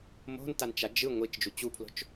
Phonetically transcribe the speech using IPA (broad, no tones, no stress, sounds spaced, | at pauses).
m o̤ n t a n t͡ʃ a d͡ʒ ɯ ŋʷ i t͡ʃ d͡ʒ u t͡ɕ u pʰ l o̤ t͡ʃ